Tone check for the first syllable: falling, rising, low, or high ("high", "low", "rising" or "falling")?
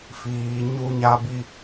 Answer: low